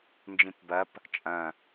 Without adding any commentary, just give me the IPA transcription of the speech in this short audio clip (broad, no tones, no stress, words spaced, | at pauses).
nd͡ʒĩpbɐp | t͡ʃʼɐ̃